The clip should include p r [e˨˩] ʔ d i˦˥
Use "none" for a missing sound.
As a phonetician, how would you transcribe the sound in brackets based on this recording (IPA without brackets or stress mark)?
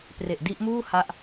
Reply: e˨˩